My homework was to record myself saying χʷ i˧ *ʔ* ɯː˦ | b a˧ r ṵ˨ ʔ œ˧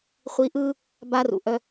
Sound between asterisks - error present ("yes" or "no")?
no